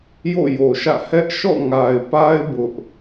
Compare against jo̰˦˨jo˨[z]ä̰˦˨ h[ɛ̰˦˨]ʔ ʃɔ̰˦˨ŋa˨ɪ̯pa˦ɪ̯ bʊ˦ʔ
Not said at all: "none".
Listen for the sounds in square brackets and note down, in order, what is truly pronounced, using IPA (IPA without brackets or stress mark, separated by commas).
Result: ʃ, ɛ˦